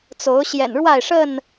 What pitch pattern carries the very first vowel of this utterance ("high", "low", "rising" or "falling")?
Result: rising